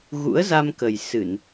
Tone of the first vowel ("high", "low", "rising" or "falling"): rising